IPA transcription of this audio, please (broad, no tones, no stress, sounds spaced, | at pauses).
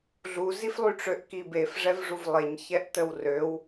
ɮ u z i f lˠ y ʈ͡ʂ ø ʔ k i b e f ʐ ɛ v ʐ u v lˠ e ɲ ç ɛ ʔ t ə w r ø w